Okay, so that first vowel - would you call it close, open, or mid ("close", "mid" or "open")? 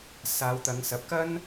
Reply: open